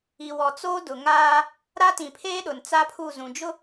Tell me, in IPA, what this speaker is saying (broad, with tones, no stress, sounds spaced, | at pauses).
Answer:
i˨ w ɔ˨ t͡s oː˦ d ʊ˨ ŋ aː˦ | ɾ a˦ t ĩ˨ pʰ eː˦ ɗ ʊ˨ n t͡s a˦ pʰ u˦˨ z ũ˨ d͡ʒ ʊ˦